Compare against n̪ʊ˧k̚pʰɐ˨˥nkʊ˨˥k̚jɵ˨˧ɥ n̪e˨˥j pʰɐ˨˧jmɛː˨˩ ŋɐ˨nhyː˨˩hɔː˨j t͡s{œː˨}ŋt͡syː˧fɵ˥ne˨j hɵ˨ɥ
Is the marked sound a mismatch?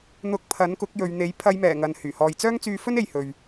yes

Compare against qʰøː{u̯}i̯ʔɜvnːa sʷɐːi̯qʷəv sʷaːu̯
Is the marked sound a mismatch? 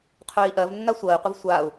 yes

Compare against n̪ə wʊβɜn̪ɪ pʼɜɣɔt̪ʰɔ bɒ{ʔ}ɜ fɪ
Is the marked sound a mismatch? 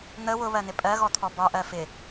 no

